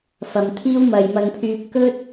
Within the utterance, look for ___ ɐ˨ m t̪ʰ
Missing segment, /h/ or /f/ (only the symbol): f